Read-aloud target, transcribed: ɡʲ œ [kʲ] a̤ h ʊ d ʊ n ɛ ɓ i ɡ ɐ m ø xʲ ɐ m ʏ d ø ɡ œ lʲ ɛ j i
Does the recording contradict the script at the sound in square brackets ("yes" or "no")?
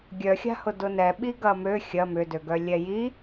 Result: yes